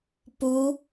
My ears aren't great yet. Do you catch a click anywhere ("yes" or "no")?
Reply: no